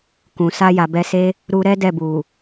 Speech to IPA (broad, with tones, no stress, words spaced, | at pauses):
kũ˨ sa˧ja˨bɛ˧se˦ | ɾu˧ɾɛ˦ dɛ˦˨bu˨